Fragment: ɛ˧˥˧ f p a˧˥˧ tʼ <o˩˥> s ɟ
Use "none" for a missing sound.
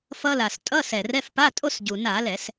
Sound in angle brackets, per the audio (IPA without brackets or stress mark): o˥˧